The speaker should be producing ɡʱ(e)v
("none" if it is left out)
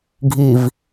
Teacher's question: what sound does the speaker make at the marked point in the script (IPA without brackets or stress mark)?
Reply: i